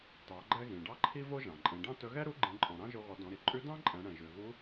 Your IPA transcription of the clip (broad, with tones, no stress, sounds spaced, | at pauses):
t ɑ˩˧ ɡ͡ǃ ɛ˧ ɣ ĩ˩ ɖ ɑ˥ ǃʰ i˥ v o˥ ʒ ɑ̃˩ ǃʼ ẽ˩˧ ɖ ɑ̃˥ t ɵ˧˥ ɣ ɛ˥ ɾ u˧˥ ɡ͡ǃ ĩ˩˧ ǃʼ ɔ̃˩ ɾ ɑ̃˥ ʒ o˧ ɣ ɔ˩˧ d ɔ̃˩˧ ɾ i˩ ǃʼ ʉ˧˥ d ɑ̃˥ ǃʼ ɛ̃˩˧ ɽ ɛ̃˩ ʒ ʉ˩ ɣ u˧˥